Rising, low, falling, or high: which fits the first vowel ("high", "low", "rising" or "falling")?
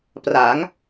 rising